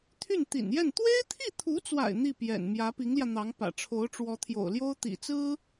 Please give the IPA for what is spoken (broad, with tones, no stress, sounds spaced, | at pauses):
t̪ʰ y˥˩ n t̪ ḭ˨˩ n j ɛ˥˩ n t̪ w e˥ ɪ̯ t̪ʰ i˥˩ t̪ʰ u˧˥ t͡s w a̰˨˩ ɪ̯ n̪ i˥˩ p j ɛ̰˨˩ n m j ä˧˥ p i˧˥ ŋ l j ä˧ n̪ ɑ˧˥ ŋ p ä̰˨˩ ʈ͡ʂʰ o˧˥ ʊ̯ ʈ͡ʂ w ɔ˧˥ t̪ʰ j o̰˨˩ ʊ̯ l j o˥ ʊ̯ t̪ ḭ˨˩ t͡s ɹ̩˥